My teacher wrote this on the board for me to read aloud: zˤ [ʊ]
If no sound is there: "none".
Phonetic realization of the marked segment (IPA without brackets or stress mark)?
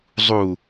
u